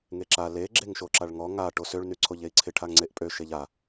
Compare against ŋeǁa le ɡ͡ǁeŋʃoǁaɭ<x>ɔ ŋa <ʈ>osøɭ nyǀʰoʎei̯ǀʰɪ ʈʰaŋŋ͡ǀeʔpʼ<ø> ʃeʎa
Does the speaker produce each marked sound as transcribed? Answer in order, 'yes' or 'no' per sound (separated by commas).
no, yes, yes